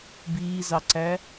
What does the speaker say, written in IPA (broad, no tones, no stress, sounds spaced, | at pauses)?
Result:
b iː z ɑ ǀ æ